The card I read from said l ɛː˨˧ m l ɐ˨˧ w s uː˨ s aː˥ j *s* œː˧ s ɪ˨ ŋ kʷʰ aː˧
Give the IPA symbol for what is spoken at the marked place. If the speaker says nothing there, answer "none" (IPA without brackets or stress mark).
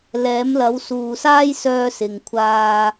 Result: s